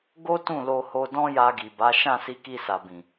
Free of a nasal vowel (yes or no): no